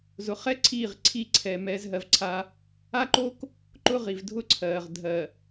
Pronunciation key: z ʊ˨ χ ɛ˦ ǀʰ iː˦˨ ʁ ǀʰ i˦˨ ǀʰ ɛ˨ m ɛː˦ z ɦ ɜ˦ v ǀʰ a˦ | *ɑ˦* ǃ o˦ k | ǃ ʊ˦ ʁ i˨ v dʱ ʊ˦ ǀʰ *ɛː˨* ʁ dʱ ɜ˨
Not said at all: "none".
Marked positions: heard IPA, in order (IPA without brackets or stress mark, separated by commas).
a˦, ɜː˨